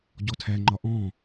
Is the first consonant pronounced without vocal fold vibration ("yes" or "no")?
no